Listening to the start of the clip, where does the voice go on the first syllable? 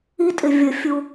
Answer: high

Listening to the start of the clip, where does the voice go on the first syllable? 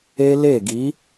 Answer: high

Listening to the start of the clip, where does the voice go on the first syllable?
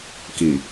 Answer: low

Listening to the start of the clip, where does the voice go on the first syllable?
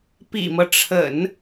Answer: low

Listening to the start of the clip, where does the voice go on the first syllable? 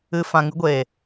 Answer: high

